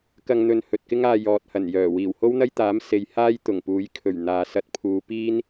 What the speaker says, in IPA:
k ɐ˧ ŋ n̪ ɵ˨˧ n h ɵ˨ t̚ k ɪ˥ ŋ aː˧ j ɔː˨ t̚ h ɐ˨˩ n j œː˨˩ w iː˨˩ w h o˥ w n̪ ɐ˥ j t̪ aː˨˥ m s e˨ j h aː˥ j t̪ ʊ˨˩ ŋ p uː˨˥ j kʰ ɵ˨˩ ɥ n̪ aː˨ s ɐ˧ t̚ pʰ uː˨˧ p iː˥ n

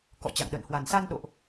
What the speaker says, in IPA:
k ɔ̰˧˨ t͡ɕ a̰˧˨ ŋ ɗ ə̰ː˧˨ n h w a˨˩ n s a˧ n ɗ o̰˧˨ ʔ

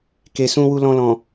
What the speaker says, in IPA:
k e˨ s ũ˧ w u˧ l ɔ̃˧ l ɔ̃˨

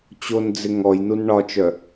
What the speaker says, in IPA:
t͡ɕ o n d͡z ɪ ŋ ɔ j n u n ɳ ɒ t͡ʃ œ

